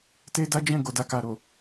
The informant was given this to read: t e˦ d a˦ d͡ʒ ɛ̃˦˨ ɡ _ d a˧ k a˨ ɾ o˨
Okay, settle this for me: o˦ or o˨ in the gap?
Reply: o˨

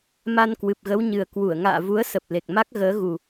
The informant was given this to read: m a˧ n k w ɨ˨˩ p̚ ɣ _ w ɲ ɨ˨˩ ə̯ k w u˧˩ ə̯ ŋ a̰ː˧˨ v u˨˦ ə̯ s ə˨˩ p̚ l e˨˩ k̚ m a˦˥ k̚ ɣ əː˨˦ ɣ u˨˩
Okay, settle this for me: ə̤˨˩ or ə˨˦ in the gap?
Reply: ə˨˦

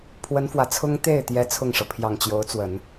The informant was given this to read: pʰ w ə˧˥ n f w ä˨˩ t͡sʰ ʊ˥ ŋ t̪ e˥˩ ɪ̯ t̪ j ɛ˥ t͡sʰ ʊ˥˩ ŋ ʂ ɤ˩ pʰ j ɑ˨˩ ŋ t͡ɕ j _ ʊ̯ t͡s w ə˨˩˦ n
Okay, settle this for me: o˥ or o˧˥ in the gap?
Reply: o˧˥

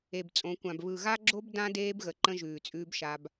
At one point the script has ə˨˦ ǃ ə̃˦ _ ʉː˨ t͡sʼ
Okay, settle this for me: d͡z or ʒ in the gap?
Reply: ʒ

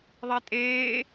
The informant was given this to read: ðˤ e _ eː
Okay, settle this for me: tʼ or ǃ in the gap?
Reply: tʼ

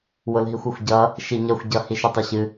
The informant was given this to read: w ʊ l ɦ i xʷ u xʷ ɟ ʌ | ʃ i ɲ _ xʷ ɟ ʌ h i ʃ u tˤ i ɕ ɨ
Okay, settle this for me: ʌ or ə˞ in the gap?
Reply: ʌ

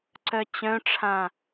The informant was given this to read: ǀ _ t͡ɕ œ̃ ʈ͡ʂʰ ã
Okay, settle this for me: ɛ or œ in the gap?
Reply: œ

